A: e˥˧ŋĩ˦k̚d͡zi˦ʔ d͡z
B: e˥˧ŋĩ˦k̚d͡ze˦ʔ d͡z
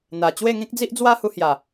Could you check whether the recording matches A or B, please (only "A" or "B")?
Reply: A